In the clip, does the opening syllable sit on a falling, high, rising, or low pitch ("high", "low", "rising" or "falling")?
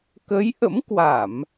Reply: rising